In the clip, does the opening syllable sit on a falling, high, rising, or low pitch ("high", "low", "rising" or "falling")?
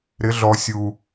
rising